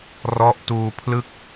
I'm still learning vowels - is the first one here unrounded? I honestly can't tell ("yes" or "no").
no